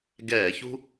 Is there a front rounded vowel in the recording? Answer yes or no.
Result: no